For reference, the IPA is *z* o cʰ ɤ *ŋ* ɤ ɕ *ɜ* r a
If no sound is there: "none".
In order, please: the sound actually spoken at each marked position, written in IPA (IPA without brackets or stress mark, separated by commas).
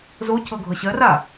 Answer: z, ɡʱ, ɜ